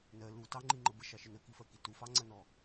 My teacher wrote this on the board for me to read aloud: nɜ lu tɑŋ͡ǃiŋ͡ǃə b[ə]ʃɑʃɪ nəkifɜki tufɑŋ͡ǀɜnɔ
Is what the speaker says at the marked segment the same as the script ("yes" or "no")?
yes